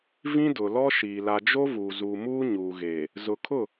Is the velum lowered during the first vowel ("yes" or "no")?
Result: yes